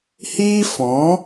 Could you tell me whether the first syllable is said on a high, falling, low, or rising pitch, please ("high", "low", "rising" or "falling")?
high